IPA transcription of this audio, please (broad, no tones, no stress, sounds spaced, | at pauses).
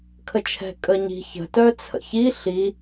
kʰ ə t͡ʃʰ ɛ̤ kʼ ə ɲ i̤ ç ə̤ t œ t͡sʰ ə̰ ç i ɬ i